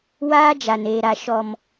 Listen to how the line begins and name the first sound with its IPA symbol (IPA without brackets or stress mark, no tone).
w